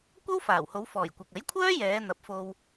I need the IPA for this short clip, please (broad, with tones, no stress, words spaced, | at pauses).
kʷɐ˥w faː˨˩who˨˧w fɔː˨˩jkʷɐ˨k̚ ɐ˨˥jkʷʰœː˥jɛː˨˧ n̪ɐ˨˥p̚fo˧w